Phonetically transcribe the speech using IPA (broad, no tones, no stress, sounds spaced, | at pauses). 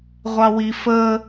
ʁʷ ɑ w i f ə